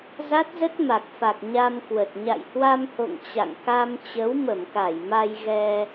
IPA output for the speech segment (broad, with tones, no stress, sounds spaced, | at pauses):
z a˦˥ t̚ z ə˦˥ t̚ m a˨˩ k̚ f a˨˩ k̚ ɲ a˧ m k w ə˨˩ t̚ ɲ a̰˧˨ j h w a˧ m h o̰˧˨ ŋ t͡ɕ a̰˧˨ ŋ k a˧ m t͡ɕ ə˨˦ w m ə˧˩ m k a˧˩ j m a˧ j ɣ ɛ˧